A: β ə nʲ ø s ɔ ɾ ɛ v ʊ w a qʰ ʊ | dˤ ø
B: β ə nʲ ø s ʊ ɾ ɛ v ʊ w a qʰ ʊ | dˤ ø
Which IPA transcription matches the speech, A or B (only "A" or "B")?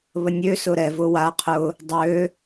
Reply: B